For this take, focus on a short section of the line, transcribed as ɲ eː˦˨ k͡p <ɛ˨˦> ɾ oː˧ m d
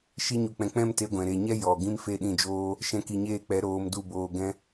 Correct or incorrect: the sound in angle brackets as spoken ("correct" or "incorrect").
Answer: correct